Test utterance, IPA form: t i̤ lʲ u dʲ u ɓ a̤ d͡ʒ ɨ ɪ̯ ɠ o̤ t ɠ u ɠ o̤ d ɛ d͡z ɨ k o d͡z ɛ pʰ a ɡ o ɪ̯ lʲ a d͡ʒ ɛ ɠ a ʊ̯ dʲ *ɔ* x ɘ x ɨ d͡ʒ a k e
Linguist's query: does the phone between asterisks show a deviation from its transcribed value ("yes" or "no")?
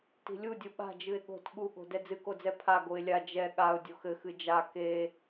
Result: yes